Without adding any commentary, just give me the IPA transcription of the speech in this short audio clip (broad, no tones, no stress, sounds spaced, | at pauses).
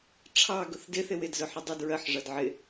ʈ͡ʂʰ ɑ ɡ ʊ θ d ɪ θ ɪ w ɪ d z ʊ ħ ɪ dˤ i d ɹ ɜ ħ ʐ ʌ d ʕ ɪ